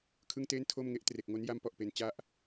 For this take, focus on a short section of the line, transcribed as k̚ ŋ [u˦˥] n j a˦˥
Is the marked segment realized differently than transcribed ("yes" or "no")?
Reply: yes